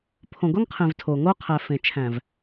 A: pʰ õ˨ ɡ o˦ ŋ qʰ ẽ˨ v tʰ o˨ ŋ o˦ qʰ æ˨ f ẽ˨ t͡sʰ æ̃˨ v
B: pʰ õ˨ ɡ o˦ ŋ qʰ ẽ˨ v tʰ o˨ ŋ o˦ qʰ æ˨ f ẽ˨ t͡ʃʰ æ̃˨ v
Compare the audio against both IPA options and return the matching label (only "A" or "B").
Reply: B